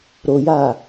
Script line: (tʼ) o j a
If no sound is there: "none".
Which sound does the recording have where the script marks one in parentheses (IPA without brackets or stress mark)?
ɾ